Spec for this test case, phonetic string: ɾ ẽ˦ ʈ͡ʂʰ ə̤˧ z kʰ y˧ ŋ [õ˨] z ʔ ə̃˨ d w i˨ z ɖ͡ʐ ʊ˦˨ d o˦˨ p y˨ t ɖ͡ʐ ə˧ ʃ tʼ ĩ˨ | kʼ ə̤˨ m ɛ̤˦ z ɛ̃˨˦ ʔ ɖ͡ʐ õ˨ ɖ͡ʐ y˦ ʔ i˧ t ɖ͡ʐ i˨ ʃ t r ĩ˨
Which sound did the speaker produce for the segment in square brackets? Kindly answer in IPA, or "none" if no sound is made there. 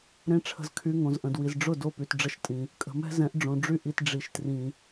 õ˨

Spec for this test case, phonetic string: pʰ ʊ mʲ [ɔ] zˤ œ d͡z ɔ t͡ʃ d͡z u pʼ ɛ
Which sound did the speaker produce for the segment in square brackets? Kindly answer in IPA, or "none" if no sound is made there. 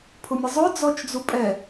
ə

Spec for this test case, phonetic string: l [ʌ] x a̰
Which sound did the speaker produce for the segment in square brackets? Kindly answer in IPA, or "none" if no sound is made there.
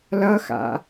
ʌ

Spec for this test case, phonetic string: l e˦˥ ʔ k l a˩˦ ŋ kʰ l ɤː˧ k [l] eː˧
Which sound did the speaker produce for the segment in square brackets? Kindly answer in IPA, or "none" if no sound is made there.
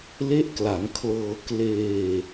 l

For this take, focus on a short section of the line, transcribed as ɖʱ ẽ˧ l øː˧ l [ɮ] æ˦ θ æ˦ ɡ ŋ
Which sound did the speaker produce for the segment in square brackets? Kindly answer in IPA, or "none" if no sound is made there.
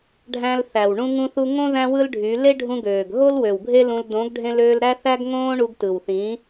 ɾ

